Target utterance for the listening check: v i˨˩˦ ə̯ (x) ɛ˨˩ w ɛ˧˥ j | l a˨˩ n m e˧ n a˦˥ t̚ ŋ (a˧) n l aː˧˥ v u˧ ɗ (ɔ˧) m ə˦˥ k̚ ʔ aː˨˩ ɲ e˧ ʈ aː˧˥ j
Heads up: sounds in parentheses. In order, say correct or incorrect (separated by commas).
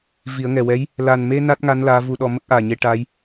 incorrect, incorrect, correct